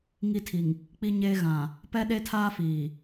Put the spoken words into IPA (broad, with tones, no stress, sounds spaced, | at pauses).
ŋ i˦˨ tʰ i˨ ŋ | k͡p i˦ ɲ eː˦ ɣ ã˨ | p ɛ˦ ɗ e˦ tʰ aː˦ f iː˨